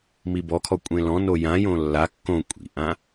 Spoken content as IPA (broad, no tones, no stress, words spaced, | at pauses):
mibɔkʰɔ kʷʼẽlɔ̃no jãjõ lːa kːõ kʷʼḭʔã